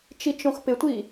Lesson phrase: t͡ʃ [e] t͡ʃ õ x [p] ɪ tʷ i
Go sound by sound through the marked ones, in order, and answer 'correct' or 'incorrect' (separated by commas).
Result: incorrect, correct